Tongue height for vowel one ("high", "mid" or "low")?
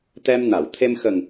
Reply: mid